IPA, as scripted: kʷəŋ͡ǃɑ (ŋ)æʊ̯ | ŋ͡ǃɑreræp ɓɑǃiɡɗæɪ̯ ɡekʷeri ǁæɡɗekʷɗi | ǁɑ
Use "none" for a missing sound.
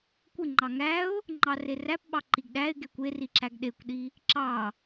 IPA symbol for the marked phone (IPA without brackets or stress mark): ŋ